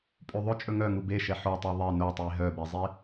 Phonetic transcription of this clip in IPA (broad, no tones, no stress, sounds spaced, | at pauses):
pʼ ʉ ðˤ ɵ t͡ʃʼ ɵ ŋ œ ŋ u b e ʃ ɛ ħ o tˤ e ðˤ e n o tˤ i ɦ œ b e zˤ i